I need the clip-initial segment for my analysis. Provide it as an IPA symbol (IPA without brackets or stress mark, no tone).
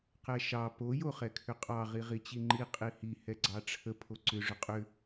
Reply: q